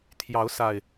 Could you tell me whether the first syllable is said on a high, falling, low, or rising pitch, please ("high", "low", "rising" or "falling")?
rising